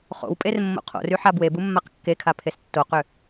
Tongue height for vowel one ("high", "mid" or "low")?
mid